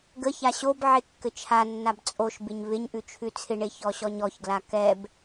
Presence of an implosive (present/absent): absent